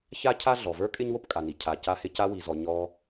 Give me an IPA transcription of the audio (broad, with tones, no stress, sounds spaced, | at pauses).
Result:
ç a˥ cʰ a˥ ɮ ɔ˩ v ə˞˥ kʼ ɪ˥ ɲ w o˥ p kʼ a˩ n i˩ cʰ a˩ c a˧ h ɪ˧ c a˧ w i˩ z ɔ˩ ɲ ɔ˧